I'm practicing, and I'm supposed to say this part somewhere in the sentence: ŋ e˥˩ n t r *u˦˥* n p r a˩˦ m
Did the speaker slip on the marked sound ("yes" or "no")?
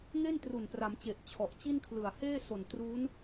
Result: yes